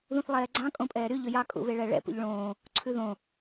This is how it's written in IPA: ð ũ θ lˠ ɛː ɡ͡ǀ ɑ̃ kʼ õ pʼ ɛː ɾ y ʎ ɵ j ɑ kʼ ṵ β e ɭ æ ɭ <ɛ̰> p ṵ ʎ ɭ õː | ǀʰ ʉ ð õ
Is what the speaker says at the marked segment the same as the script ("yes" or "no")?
yes